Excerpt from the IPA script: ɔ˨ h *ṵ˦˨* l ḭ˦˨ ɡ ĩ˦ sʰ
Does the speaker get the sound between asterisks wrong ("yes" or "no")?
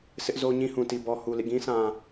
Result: yes